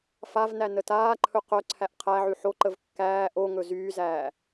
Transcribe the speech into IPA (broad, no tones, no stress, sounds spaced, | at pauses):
f a v n æ n ə t aː ǃʰ ɵ q œ ǀʰ æ ʔ qʰ æ ʕ y ħ o ǃ ə v kː æː ʔ o ŋ ɵ z yː z æː